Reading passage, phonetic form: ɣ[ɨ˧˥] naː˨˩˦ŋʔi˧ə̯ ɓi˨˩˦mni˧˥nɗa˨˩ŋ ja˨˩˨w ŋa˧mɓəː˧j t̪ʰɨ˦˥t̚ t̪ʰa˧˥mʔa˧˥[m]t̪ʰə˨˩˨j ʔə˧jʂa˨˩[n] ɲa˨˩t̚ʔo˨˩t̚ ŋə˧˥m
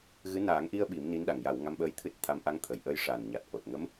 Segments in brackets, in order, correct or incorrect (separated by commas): correct, incorrect, correct